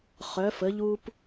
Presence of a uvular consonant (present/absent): present